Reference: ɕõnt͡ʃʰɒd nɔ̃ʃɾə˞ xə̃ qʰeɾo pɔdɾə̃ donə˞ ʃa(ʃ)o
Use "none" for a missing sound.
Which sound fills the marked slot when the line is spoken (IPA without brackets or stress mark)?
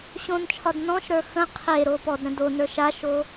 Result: ʃ